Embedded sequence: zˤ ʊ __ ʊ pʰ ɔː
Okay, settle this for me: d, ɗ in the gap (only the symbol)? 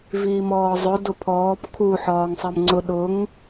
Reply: d